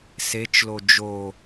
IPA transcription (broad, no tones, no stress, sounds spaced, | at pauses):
s e t͡ʃ l o d͡ʒ o